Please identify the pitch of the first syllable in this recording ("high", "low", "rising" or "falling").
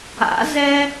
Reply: rising